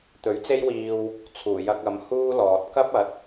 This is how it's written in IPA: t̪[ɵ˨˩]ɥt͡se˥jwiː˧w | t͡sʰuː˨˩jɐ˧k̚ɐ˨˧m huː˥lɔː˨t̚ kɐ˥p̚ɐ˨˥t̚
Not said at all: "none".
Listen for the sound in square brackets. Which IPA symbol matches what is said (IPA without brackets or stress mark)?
ɵ˨˥